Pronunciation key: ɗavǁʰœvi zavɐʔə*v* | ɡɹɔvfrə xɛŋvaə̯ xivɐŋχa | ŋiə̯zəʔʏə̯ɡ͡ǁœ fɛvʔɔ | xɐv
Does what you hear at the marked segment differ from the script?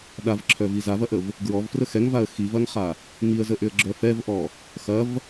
no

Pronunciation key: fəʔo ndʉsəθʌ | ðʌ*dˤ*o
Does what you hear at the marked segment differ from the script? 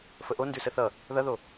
yes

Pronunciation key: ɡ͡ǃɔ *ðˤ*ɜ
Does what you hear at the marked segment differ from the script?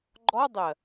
yes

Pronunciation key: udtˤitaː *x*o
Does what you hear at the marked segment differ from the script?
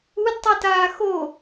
no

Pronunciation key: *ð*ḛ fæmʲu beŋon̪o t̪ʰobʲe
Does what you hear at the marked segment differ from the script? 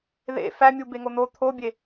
no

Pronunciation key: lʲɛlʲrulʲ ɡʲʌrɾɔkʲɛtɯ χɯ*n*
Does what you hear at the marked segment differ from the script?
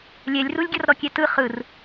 yes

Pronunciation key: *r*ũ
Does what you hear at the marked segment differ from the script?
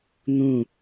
yes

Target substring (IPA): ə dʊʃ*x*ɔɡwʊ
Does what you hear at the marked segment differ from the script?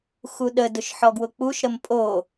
yes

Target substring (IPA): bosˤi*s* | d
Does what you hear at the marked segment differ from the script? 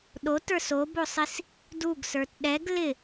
no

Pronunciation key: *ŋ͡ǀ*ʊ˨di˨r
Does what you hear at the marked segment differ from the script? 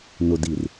yes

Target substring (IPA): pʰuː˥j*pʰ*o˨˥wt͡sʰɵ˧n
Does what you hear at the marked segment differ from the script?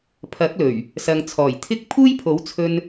no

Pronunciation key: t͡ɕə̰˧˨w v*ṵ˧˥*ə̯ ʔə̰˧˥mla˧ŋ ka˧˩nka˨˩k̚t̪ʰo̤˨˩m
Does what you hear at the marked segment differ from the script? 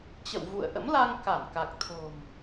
yes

